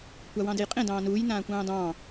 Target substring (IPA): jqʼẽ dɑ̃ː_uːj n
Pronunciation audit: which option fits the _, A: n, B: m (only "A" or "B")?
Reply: A